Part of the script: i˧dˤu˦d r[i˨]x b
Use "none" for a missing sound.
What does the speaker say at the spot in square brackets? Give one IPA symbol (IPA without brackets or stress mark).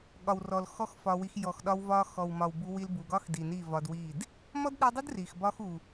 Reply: i˨